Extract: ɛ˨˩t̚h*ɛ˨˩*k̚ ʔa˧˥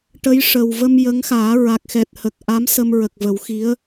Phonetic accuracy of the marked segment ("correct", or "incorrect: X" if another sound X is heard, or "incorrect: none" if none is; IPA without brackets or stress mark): incorrect: ə˨˩